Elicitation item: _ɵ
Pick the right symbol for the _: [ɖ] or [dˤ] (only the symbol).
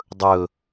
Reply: dˤ